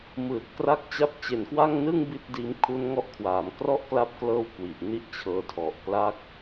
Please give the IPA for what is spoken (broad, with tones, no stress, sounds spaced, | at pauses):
m ɯː˨˩ t̚ k r a˥˩ k̚ t͡ɕ a˥˩ p̚ t͡ɕ e˨˩ n k w a˥˩ ŋ n ɯ˥˩ ŋ b i˥˩ t̚ d iː˦˥ m kʰ u˦˥ n ŋ ɔ˦˥ ʔ kʰ w aː˩˦ m k r ɔ˥˩ ʔ k l a˦˥ p̚ k l ɤː˦˥ w k w i˨˩ ʔ n i˦˥ ʔ t͡ɕʰ ɤː˧ tʰ ɔ˨˩ ʔ k l a˥˩ k̚